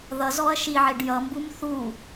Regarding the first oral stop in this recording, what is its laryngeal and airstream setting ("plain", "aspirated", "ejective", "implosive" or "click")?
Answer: plain